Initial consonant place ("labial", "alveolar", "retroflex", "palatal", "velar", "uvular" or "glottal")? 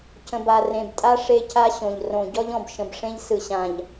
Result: palatal